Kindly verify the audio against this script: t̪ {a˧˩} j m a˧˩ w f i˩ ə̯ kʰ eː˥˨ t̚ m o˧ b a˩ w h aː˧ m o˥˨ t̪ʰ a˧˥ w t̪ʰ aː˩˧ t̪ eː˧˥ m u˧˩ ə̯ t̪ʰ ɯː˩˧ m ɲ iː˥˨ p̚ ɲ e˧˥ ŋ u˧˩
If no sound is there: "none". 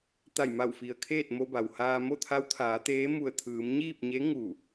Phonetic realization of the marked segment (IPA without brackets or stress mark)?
a˧˩